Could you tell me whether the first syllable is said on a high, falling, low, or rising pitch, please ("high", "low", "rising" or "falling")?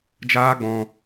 high